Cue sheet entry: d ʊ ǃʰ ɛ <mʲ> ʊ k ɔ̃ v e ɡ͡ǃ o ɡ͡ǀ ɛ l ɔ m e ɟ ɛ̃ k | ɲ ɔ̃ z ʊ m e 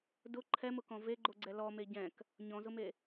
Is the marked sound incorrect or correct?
incorrect